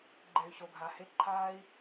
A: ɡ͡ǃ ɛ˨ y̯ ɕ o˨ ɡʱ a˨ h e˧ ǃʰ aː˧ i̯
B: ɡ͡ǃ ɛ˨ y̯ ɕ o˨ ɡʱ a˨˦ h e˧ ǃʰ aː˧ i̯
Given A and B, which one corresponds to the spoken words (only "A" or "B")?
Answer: A